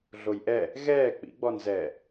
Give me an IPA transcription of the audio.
ɮ o j ʔ ɛ | ɣ ɛː k͡p ḭ ɡ͡b ɔ n z ɛː

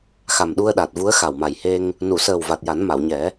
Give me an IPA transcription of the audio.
x a˨˩ m ɗ u˧ ə̯ ɗ a˨˩ t̚ v u˧˥ ə̯ x a˨˩ w m a˨˩ j h e˧ ŋ | n u˨˩˨ s əː˨˩ w v a˨˩ t̚ j a˨˩˦ n m a˨˩˨ w ɲ ɛ˨˩˦

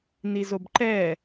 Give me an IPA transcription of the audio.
n i z o b ǃ ɛ

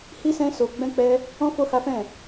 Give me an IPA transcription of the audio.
h i˦ s ɛ̃˦ s o˧ ɡ͡b ɛ̃˦ k͡p ɛ˦ | ɔ̃˦ f o˦ h a˦ f ɛ̃˦˨

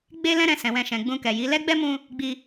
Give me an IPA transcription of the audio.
ɡ͡b e˦ l ɛ̃˦ ɾ ɛ̃˧ s ɛ̃˨ w ɛ̃˧ ʃ ɛ̃˨ ɡ͡b ũ˧ k ɛ˨ j i˨˦ l ɛ˦ ɡ͡b ɛ˦ m ũ˧ | ɡ͡b i˧

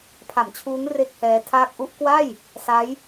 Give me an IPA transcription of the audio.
pʰ a˩˦ m t͡ɕʰ uː˦˥ ŋ r e˥˩ k̚ h ɛː˦˥ tʰ aː˥˩ k̚ ʔ u˥˩ ʔ k w a˥˩ j | s a˦˥ j

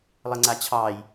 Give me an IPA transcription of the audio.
lˠ ɘ ŋ͡ǀ a t͡ɕʰ ɑː j

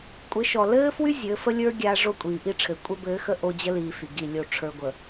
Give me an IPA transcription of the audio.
kʷʼ ɘ˨˦ ʃ ɔ˨ l ɘː˦ f w y˦ zʲ ɘː˨˦ f ə˦ lʲ ə˞˦ ɡʲ aː˦ ʐ o˦˨ kʷʼ iː˨ ʔ i˦ ʈ͡ʂʰ ɘː˨ kʷʼ ə˦ b ɘː˨˦ x ə˦ ʔ o˦ d͡ʑ ə˦ l iː˨ f y˨ ɡ i˦˨ lʲ o˦˨ ʈ͡ʂʰ ə˞˨ ɡʷ ə˨

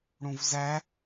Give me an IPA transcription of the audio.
ɽ ũ v z æ

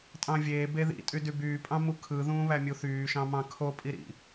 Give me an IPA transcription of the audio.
tʼ ɑ̃ vʲ eː b e ð ḭ tʼ y d y b yː pʼ ɑ̃ m u kʰ ɯ ð ũː β æ mʲ u θ yː ʃ ɑ̃ m ɑ̃ kʰ o pʼ i ɾ ḭ

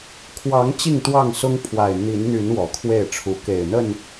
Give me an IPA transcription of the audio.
kʰ w ɑ˨˦ ŋ t͡ɕ i˥˨ ŋ t̪ w ɑ˥˨ ŋ s ʊ˦ ŋ pʰ w a˨˩ ɪ̯ n̪ i˨˦ n n̪ y˨˦ n w ɔ˨˩ kʰ w e˥˨ ɪ̯ ʈ͡ʂʰ u˨˦ k e˨˩ ɪ̯ n̪ ə˥˨ n

